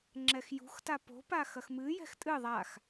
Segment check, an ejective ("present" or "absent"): present